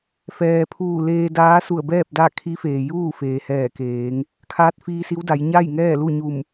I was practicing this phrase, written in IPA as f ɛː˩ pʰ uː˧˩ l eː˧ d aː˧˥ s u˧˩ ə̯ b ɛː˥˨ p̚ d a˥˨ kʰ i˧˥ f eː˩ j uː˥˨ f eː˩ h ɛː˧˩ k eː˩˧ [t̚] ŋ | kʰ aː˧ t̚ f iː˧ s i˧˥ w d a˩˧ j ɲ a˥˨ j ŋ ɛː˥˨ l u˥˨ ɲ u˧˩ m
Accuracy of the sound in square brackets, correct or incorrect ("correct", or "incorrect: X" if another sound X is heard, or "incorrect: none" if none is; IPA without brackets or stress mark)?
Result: incorrect: none